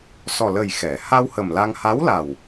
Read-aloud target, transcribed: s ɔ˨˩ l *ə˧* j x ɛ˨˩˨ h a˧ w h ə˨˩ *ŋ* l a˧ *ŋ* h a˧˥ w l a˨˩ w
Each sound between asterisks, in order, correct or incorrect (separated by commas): incorrect, incorrect, correct